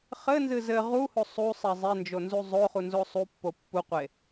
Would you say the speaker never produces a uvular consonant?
no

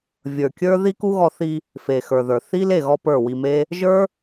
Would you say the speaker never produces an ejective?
yes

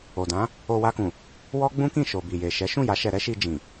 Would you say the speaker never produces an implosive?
yes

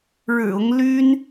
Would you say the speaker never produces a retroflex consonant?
no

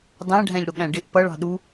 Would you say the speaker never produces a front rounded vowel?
yes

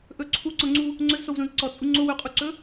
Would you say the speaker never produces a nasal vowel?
no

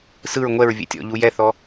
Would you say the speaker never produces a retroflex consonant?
yes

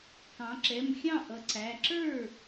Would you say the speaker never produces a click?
no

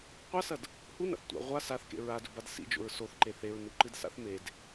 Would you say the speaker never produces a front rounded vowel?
yes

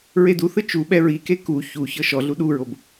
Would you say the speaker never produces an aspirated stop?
yes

